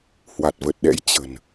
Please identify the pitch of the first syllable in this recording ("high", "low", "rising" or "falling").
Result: low